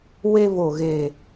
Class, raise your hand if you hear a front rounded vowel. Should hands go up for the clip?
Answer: no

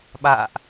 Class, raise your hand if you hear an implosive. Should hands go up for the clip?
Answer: yes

